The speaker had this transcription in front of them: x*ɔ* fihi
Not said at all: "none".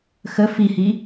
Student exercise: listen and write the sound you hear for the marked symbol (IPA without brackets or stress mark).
ə